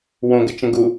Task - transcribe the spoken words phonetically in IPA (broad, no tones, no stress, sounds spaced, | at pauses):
w õ ɡ ə t͡ʃ ə̃ ɡ u